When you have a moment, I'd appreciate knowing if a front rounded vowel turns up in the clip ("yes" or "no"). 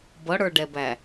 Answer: no